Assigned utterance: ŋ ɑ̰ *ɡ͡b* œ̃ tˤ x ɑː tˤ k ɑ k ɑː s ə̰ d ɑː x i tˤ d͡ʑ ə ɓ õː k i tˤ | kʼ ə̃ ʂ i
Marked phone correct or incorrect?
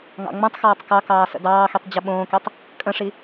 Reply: incorrect: ŋ͡m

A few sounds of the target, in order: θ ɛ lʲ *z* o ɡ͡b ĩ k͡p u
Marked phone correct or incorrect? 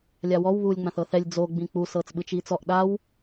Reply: incorrect: d͡z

